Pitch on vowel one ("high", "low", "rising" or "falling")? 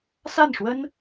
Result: falling